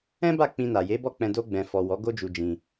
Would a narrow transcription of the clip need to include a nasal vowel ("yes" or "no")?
yes